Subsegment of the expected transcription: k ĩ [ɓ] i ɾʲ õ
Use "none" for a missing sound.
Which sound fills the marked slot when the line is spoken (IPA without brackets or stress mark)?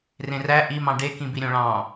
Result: b